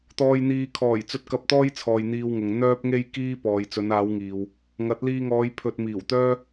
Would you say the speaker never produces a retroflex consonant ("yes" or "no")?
yes